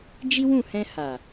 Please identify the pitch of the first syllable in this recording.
high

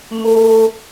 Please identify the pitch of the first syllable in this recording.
high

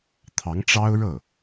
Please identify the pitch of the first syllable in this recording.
rising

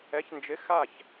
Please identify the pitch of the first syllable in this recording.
rising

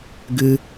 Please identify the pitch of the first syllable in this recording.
high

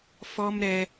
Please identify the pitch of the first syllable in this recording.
high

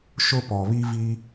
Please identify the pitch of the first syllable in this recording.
high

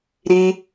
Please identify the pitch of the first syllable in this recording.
high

